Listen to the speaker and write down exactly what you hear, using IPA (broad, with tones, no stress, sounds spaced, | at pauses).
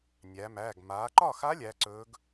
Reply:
nʲ æ˩˧ m æː˩˧˩ ɡ m aː˩˧ ǃ ɒ˥˩ x a˧˥ lʲ æː˧˥ ǀ ɵː˧˥ ɡ